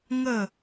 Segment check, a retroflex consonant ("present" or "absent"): absent